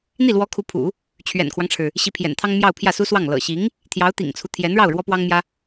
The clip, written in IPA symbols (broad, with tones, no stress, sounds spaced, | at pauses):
n̪ i˥˩ l w ɔ˧˥ kʰ u˧˥ pʰ ṵ˨˩˦ | t͡ɕʰ ɥ ɛ̰˨˩ n kʰ w ɑ˦ ŋ ʈ͡ʂʰ ɻ̩˩ | ɕ i˧˥ pʰ j ɛ̰˨˩ n t̪ʰ ɑ˥ ŋ m j ɑ˥˧ ʊ̯ pʰ j ä˥˩ s u˥ s w ɑ˥˩ ŋ l ɤ̰˨˩ ɕ i˧˥ ŋ | t̪ʰ j ɑ˧˥ ʊ̯ t̪ ḭ˨˩ ŋ t͡sʰ u˦ t̪ʰ j ɛ˧˥ n ɻ ɑ˥˩ ʊ̯ ɻ w ɔ˥ p w ɑ˥ ŋ m j ä˥